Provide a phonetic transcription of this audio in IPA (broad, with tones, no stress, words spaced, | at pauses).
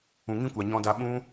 ũ˨ŋĩ˦kʷa˨ ɲɔ̃˧da˧ɓũ˦